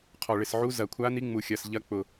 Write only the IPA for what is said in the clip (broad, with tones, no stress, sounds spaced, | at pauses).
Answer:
qʰ ɔ˨˩ ɭ ɪ˨˩ s ʕ u˧˥ z ɐ˨˩ kʷʰ a˧˥ n i˧˥ ŋ͡m u˨˩ xʲ ɐ˨˩ s ʎ ɐ˧˥ k͡p ʊ˨˩